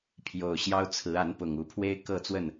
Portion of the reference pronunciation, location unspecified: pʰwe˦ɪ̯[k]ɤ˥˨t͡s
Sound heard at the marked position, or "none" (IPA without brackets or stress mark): k